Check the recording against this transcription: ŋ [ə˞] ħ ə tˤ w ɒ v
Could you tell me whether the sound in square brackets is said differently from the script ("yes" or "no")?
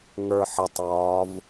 no